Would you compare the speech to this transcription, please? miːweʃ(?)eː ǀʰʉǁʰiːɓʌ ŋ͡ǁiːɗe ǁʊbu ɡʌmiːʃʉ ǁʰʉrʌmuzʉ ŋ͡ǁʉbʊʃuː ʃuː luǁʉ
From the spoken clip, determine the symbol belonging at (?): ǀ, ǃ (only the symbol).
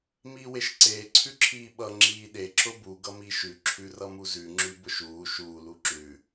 ǀ